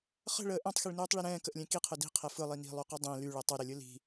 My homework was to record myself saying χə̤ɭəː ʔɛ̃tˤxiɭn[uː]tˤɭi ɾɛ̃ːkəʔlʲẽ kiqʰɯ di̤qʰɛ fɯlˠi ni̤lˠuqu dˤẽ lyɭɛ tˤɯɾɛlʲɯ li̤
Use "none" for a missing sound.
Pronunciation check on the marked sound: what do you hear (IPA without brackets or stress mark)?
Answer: uː